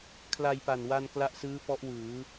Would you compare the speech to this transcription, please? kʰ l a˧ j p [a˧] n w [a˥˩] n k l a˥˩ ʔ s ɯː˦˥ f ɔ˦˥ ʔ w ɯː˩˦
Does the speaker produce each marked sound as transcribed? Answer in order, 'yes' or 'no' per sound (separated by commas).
no, no